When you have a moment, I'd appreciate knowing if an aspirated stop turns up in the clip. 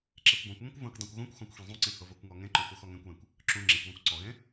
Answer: no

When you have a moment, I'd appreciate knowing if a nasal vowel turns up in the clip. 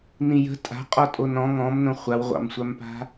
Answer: yes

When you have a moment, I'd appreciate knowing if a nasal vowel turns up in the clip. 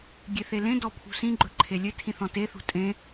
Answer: yes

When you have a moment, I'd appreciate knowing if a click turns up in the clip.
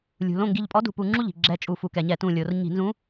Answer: yes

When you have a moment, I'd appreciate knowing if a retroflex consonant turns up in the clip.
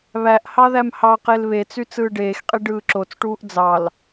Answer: yes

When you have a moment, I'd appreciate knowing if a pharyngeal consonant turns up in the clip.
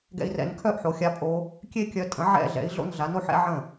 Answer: yes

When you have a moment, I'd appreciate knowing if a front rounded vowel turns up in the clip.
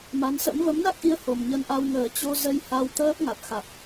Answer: no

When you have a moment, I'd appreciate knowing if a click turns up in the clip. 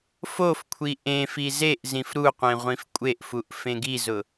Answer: no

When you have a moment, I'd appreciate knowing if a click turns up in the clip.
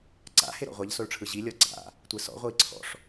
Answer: yes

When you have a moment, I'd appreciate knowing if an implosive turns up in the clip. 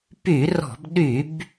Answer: yes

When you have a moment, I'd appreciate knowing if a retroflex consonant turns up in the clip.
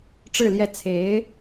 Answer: yes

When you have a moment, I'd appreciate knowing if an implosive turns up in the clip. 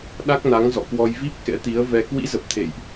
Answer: yes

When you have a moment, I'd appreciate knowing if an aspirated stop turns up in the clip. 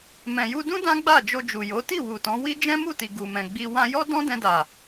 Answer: no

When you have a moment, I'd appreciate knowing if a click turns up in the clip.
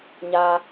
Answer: no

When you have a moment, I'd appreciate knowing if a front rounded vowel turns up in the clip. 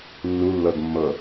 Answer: no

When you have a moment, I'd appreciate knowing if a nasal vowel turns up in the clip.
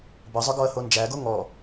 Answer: no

